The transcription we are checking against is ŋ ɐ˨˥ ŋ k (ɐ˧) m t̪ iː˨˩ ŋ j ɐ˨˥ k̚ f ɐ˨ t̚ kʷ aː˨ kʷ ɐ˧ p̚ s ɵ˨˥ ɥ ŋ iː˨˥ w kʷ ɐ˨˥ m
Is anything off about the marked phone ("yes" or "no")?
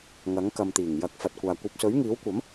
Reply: yes